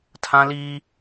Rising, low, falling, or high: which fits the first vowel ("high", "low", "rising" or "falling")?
high